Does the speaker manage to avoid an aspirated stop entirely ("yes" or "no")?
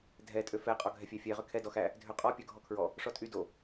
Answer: no